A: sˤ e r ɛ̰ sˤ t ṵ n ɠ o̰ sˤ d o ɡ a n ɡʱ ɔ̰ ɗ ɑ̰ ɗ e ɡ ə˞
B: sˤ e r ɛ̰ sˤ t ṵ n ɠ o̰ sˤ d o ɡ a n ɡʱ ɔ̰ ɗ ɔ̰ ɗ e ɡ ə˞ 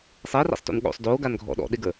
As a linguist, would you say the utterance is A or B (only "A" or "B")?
B